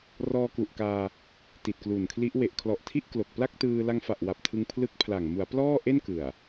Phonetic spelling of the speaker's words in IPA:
r ɔː˧ k u˨˩ ʔ k aː˧ | t i˨˩ t̚ k l u˨˩ n kʰ l i˦˥ ʔ w e˨˩ ʔ kʰ l ɔ˨˩ ʔ tʰ i˥˩ ʔ k l o˨˩ k̚ p l a˥˩ k̚ t ɯː˧ l a˧ ŋ f a˨˩ ʔ w a˨˩ p̚ tʰ ɯ˧ ŋ pʰ l ɯ˦˥ k̚ pʰ l a˨˩ ŋ m u˩˦ a̯ p l ɔː˥˩ ʔ e˥˩ n k ɯ˨˩ a̯

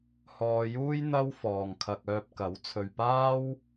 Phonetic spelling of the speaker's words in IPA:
h ɔː˧ j uː˥ j n̪ ɐ˥ w f ɔː˨ ŋ kʰ ɐ˧ k̚ œː˧ p̚ k ɐ˨˥ w t͡sʰ ɵ˨ ɥ p aː˥ w

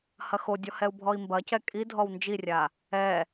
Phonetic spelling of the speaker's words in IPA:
h ɐ x o dʲ ɔ h ɛ u̯ bʱ ɔ i̯ m b ɐ c ɛ kʼ i dʱ ɔ w n d͡ʒ i rʲ a | ɛ

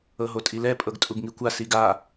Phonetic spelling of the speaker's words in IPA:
ɤ ɦ o tʼ i l ɛ pʼ ɤ ɡ tʼ u ɡ ŋ i kʷ a s i ɡ a

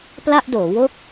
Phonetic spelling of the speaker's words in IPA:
p l a˥˩ ʔ d oː˩˦ w o˥˩ k̚

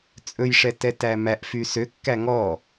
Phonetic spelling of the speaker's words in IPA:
t͡sʼ ɵ j ʂ ɛ t ɛ t æ m æ ʔ f y s ø kː æ ŋ ɔ

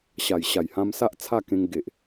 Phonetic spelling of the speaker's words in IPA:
ɕ a˨˩ j ɕ a˨˩ j h ã˧ m s a˦ ʔ t͡sʰ a˥˧ k ẽ˧ ŋ ɡ e˨ ʔ

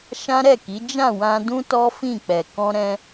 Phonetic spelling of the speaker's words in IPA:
ʃ ã˦ ɾ ɛ˦˨ k i˨˦ d͡ʒ ã˦˨ w ã˧ d ũ˦ t ɔ˦ f ĩ˦˨ k͡p ɛ˨ k ɔ̃˧ ɾ ɛ̃˧

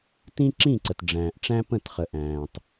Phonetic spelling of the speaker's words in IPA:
t ĩ˦ ǁ ĩ˦˨ ǀ ə˨ t ɖ͡ʐ æ̃ː˨ ʔ ʈ͡ʂ æ̃˦ p ə̃˦˨ t χ ə˨ ʔ æ̃ː˨ tˤ

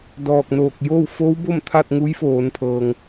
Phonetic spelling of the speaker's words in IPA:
d ɔː˧˩ k̚ n oː˧˩ k̚ j oː˥˨ w f oː˧˥ w b o˥˨ m t̪ʰ a˥˨ t̚ ŋ u˧˥ j f oː˩˧ n pʰ ɤː˩ ŋ

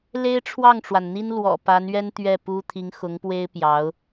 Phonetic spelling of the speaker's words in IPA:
l e˥ ɪ̯ ʈ͡ʂʰ w ɑ˥˩ ŋ ʈ͡ʂ w a˩ n n̪ i˥ n l w ɔ̰˨˩ p a˧˥ n ɥ ɛ˥ n t̪ ɥ ɛ˥˩ p u˥ t̪ʰ i˧˥ ŋ x ʊ˧˥ ŋ p w e˥ ɪ̯ p j ɑ˧˥ ʊ̯

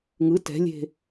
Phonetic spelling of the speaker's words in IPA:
ŋ ɯ t ɛ̤ lʲ e̤

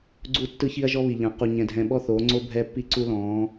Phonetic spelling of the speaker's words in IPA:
ɡ͡ǀ u˦˨ tː ɯ˦ ç i˦ ɐ̯ ʒ ɔ˦ β i˨ ʎ ã˨ q u˨ ɲ ɛ̃˨ dʱ ɛ̃˨ ɓ ɔ˦ θ oː˨˦ ŋ͡ǀ o˦ bʱ ɛ˦ pː i˦ ǀ u˦ l ɔ̃ː˨˦

